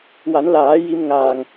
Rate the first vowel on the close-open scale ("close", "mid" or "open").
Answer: open